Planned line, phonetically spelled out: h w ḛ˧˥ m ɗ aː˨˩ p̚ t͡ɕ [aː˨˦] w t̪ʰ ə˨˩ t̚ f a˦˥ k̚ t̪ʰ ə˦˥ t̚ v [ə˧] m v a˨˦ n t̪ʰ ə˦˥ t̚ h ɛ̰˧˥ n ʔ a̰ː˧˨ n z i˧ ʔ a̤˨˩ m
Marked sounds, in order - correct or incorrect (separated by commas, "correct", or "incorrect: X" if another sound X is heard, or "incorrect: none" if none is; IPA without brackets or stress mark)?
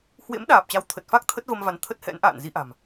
incorrect: a˨˦, correct